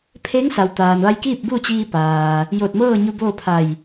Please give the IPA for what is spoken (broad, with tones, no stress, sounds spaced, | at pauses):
pʰ e˧˥ ŋ s a˩ w t̪ aː˩ n ʋ a˧ j k iː˥˨ p̚ b u˥˨ t͡ɕ iː˧ p aː˩ | j o˧˩ t̚ m ɤː˥˨ ɲ u˧ b oː˥˨ pʰ a˧˩ j